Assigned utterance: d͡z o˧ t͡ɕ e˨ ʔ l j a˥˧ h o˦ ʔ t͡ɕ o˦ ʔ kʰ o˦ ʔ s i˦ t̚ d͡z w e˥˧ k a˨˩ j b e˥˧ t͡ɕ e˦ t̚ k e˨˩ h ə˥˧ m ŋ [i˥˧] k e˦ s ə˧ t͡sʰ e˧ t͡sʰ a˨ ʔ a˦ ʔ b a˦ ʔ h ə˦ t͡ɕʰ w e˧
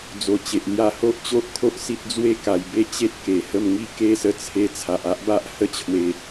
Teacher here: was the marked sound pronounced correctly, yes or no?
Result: yes